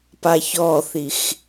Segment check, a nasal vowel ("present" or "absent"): absent